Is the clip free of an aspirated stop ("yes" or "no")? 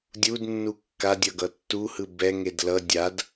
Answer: yes